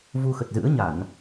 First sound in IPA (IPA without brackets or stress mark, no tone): v